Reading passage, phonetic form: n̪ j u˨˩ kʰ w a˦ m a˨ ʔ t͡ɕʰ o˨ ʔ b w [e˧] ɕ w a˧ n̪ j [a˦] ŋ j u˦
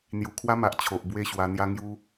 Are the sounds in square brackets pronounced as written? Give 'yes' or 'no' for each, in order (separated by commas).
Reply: no, yes